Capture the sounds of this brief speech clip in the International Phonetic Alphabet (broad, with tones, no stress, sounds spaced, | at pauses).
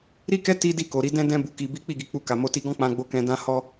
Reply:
ɾ i˦ k ɛ˦ t i˦ d i˦˨ k o˨ ɾ i˨˦ d ɛ̃˦ d ɛ̃˦ b u˧ k i˧ b i˦ k͡p i˦˨ ɡ i˧ k͡p u˧ k a˨ m o˧ t i˧ ɡ ɔ̃˦ k͡p ã˧ ɡ͡b o˧ k ɛ̃˧ d ã˦ h ɔ˦